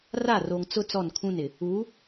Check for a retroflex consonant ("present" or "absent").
absent